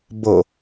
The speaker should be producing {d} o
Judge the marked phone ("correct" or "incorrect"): incorrect